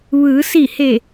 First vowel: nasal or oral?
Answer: oral